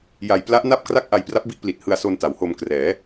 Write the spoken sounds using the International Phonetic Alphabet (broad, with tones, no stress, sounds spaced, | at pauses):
j a˨˩ j p l a˦˥ ʔ n a˦˥ p̚ k r a˦˥ k̚ ʔ a˧ j p r a˦˥ p̚ b i˦˥ ʔ p l i˨˩ t̚ h ɯ˧ a̯ s o˧ n t a˩˦ w h o˧ m k r ɛː˩˦